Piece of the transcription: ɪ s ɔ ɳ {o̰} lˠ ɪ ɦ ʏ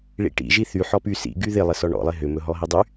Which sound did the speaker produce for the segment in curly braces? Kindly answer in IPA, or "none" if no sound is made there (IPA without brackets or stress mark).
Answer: ɔ̰